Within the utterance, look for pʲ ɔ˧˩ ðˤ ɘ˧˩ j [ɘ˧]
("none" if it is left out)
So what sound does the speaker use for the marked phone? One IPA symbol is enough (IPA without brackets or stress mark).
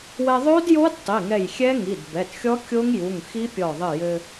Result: ɘ˧